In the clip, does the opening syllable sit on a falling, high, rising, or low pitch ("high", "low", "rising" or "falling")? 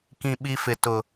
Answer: low